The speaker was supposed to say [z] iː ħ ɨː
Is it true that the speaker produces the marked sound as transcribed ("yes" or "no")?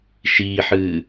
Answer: no